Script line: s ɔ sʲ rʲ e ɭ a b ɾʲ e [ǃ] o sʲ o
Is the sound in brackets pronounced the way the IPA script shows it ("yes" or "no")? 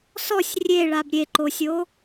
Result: yes